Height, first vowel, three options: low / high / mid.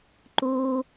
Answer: high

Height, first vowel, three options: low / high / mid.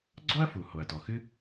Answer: mid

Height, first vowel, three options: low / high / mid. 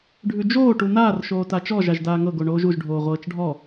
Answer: high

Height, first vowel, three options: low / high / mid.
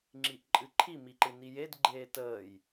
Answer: high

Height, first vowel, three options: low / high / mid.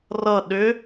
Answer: mid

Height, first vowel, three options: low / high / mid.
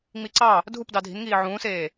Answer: high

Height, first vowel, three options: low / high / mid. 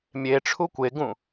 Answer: mid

